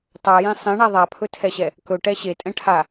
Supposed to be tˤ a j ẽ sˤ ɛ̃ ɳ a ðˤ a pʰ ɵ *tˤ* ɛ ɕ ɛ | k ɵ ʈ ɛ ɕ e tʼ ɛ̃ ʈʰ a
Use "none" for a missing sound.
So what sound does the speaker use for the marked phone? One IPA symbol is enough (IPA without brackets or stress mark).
tʰ